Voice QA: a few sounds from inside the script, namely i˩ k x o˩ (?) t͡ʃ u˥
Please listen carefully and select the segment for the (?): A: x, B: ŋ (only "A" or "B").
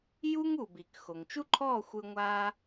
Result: B